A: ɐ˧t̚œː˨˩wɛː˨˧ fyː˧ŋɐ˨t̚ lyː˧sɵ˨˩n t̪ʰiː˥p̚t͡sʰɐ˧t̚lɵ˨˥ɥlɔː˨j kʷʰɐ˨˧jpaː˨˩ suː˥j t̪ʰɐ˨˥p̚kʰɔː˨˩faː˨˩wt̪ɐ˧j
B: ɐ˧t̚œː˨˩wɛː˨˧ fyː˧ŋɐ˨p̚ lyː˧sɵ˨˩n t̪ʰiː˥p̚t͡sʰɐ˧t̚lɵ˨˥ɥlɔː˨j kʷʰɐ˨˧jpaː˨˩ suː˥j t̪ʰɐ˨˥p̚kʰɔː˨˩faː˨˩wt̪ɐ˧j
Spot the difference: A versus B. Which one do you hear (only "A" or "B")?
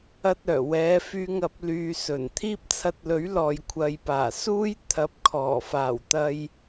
B